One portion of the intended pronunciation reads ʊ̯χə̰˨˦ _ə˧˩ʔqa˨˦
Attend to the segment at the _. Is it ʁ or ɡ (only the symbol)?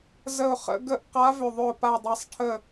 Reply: ɡ